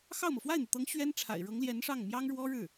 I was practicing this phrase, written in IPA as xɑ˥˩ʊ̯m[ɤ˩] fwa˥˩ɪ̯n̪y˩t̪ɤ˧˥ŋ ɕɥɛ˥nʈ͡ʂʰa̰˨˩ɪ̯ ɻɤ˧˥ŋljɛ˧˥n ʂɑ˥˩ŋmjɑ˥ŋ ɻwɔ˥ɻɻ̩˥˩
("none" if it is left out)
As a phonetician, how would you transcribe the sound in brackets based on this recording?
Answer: ɤ˩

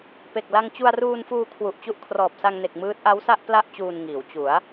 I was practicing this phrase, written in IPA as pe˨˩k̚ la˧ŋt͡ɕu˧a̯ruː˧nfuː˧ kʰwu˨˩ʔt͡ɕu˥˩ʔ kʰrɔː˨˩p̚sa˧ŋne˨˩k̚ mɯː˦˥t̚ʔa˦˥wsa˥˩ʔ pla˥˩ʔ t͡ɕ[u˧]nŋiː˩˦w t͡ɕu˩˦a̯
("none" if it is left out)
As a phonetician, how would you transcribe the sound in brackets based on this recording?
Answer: uː˧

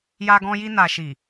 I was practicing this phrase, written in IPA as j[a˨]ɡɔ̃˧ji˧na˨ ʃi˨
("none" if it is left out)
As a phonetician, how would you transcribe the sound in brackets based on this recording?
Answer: a˧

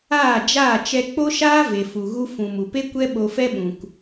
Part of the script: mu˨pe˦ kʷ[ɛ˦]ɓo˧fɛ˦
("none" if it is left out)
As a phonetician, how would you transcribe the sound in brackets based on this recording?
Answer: ɛ˦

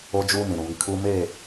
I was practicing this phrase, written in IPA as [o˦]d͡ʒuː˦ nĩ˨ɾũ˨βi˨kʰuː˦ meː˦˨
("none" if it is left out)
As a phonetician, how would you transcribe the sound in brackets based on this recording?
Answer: o˦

